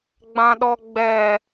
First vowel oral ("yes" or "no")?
no